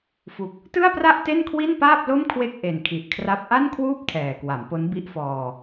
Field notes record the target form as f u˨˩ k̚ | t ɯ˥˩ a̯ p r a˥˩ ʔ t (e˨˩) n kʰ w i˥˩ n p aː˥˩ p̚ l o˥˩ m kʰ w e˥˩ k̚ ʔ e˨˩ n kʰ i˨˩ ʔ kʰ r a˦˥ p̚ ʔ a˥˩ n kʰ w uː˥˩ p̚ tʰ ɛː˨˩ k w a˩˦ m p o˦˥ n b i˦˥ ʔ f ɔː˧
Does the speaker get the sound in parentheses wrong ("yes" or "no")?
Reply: yes